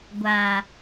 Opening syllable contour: low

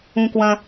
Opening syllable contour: high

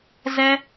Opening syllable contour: high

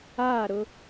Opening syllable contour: falling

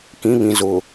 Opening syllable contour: rising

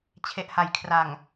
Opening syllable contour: low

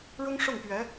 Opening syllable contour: high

